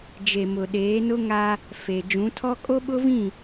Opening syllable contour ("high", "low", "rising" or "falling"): low